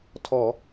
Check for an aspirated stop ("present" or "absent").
present